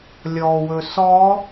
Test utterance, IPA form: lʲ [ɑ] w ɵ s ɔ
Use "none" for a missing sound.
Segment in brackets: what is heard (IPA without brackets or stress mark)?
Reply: ɔ